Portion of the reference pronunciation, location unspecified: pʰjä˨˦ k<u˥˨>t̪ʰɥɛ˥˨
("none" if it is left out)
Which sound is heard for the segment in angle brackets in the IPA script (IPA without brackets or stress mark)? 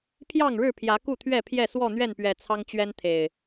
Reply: u˥˨